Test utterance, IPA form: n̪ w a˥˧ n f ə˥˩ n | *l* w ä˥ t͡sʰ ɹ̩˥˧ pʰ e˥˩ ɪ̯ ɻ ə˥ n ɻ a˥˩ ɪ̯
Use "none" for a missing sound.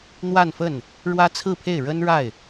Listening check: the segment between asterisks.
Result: ɻ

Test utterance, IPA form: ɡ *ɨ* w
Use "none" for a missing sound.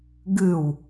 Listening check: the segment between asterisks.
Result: ɨ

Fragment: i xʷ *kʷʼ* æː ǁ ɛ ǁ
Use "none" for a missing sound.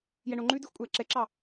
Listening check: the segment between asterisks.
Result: kʷʼ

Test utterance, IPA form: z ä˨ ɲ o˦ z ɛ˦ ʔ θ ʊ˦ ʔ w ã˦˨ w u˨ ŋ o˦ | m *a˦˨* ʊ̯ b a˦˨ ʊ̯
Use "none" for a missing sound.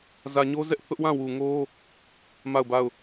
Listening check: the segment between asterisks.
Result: a˦˨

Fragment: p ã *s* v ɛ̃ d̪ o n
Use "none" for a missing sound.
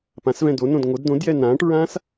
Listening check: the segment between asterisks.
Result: s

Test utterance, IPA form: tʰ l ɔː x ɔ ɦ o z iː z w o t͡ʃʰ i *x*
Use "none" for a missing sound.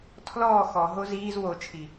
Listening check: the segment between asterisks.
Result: none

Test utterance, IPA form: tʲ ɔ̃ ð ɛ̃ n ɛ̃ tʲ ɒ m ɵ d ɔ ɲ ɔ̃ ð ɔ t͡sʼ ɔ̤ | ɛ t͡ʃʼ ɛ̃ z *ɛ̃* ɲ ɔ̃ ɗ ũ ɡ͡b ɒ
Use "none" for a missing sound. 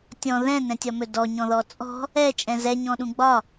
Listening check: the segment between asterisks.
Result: ɛ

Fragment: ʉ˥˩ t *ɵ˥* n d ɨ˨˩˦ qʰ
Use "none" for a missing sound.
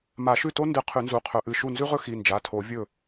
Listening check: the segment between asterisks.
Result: o˥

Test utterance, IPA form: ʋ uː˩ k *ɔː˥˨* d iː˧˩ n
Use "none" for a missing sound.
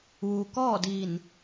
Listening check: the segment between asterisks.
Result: ɔː˥˨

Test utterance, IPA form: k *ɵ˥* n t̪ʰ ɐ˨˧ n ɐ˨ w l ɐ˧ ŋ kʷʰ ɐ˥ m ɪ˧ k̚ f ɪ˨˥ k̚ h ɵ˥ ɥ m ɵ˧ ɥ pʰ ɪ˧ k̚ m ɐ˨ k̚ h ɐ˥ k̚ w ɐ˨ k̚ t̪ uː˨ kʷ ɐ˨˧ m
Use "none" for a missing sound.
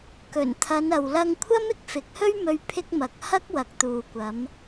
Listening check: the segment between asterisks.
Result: ɵ˨˩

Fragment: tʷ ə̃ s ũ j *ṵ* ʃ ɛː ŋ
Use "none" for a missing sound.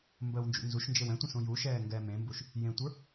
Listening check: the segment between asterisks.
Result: u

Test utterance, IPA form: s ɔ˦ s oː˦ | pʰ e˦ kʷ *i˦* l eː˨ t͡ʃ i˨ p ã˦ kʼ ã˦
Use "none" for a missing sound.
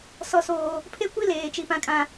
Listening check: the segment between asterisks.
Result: i˦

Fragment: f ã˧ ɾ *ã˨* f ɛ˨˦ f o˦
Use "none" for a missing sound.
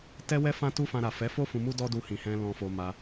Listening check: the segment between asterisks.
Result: a˨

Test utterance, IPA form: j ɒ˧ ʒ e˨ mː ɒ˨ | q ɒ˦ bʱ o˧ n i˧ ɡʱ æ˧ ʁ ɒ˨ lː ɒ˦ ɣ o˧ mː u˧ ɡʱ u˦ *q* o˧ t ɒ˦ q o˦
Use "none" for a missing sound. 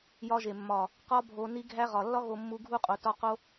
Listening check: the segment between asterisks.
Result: qʼ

